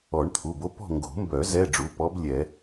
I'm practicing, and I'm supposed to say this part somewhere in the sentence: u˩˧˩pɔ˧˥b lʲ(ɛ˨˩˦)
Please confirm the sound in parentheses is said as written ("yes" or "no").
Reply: yes